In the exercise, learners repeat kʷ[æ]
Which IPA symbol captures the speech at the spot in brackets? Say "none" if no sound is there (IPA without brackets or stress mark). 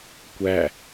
æ